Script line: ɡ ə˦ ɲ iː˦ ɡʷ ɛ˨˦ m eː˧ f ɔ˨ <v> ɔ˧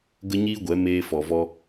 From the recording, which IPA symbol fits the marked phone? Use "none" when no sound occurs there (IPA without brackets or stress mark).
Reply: v